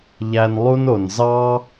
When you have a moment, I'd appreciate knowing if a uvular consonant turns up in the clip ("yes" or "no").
no